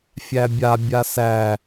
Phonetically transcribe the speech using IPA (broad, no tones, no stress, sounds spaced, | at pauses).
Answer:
fʲ æ bʲ a bʲ a s æ